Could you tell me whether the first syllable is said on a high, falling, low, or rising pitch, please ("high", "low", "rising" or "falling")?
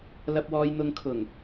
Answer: low